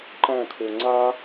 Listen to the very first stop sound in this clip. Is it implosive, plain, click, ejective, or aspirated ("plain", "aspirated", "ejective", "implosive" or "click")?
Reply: click